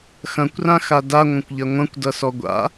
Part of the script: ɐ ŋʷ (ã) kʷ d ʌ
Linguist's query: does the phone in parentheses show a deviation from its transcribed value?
yes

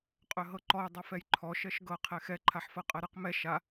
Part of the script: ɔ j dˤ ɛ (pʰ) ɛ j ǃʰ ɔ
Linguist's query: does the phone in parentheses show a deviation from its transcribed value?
yes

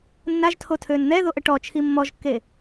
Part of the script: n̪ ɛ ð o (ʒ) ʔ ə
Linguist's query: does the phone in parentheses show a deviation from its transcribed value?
yes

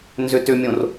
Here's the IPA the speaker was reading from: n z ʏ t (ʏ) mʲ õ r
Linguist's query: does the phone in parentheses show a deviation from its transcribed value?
no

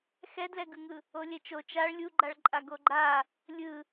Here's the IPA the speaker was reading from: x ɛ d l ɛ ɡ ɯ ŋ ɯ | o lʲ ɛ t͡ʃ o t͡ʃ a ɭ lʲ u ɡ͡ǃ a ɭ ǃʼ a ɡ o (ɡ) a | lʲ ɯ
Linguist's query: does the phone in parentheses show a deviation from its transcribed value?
yes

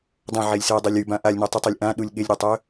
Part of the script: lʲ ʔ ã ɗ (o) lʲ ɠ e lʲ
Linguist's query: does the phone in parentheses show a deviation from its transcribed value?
yes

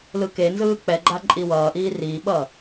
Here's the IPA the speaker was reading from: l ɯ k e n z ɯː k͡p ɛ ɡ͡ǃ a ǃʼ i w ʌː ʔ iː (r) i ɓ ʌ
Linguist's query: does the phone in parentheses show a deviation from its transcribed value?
no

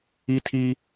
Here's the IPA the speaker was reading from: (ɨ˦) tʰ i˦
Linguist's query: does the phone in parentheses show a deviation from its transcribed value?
yes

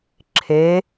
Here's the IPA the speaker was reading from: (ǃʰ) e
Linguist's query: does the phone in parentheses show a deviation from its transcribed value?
yes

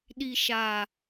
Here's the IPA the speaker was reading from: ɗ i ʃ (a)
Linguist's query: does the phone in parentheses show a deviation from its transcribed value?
no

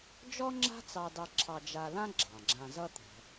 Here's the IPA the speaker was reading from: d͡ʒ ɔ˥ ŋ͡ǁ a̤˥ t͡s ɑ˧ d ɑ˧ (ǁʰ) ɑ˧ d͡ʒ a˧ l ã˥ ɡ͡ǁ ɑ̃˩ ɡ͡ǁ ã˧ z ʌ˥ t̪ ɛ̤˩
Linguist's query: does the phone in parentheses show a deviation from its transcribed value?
no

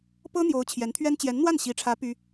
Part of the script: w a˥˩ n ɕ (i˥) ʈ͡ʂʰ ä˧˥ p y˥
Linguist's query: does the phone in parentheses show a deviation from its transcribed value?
yes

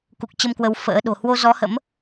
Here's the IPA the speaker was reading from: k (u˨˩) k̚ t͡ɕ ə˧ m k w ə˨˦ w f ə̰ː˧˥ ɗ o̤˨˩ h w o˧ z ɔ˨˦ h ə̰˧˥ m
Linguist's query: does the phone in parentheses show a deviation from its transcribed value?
no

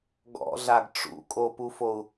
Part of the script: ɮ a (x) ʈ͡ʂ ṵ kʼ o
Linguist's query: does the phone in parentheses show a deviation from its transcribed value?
yes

